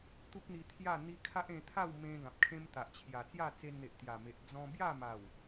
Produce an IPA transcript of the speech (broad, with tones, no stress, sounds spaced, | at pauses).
t̪ u˦ k̚ n̪ i˧ t̪ʰ j a˥˧ n̪ i˦ kʰ a˦ ʔ ẽ˧ t̪ʰ a˥˧ w m ẽ˧ ɡ ã˨ p̚ kʰ ẽ˦ m t̪ a˨ ʔ t͡ɕʰ j a˨˩ t͡s j a˥˧ t͡s e˧ n n̪ e˨ ʔ t̪ j a˨˩ m e˨ ʔ d͡z ɔ̃˧ b j a˥˧ m a˨˩ w